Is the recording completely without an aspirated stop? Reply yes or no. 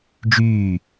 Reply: yes